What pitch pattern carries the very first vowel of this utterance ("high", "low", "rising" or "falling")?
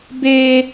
high